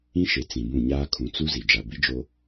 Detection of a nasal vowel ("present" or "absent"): present